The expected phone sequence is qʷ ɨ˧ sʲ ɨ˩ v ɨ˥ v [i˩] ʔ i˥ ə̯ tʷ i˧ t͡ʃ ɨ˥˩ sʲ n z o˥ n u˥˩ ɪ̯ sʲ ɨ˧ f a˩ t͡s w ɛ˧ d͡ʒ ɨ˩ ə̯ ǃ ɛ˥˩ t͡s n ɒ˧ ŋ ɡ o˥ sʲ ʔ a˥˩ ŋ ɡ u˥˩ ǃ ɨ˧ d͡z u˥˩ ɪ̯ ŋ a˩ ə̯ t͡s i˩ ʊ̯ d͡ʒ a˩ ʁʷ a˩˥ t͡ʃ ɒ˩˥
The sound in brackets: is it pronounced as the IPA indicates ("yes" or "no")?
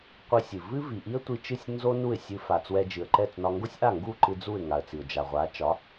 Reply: yes